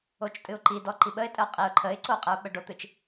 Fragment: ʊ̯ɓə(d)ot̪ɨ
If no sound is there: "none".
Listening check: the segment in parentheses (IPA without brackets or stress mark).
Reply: ɖ